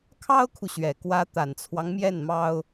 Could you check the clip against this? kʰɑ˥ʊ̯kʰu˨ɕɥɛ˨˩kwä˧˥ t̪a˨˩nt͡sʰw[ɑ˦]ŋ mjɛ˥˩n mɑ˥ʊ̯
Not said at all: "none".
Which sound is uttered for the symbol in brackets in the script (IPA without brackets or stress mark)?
ɑ˦